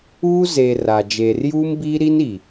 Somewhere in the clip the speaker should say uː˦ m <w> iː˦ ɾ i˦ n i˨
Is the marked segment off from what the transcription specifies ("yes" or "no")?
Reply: yes